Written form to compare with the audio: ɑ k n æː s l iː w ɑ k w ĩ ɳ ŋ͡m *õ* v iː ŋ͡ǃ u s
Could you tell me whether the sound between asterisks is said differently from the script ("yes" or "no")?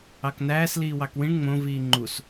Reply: no